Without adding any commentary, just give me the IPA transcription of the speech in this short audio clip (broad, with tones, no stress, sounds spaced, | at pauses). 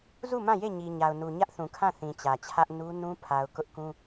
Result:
z u˦˨ m ã˦˨ j e˦˨ ɲ i˨ ɲ a˨ ʊ̯ n u˨ ɲ ä˦ ʔ θ ũ˨ kʰ ã˦˨ θ ĩ˨ t͡ɕ ä˨ t͡ɕʰ ä˦ ʔ n u˦ n ũ˦ pʰ a˨ ʊ̯ k ʊ˦ ʔ k ũ˦